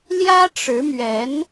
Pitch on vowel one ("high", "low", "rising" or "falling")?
high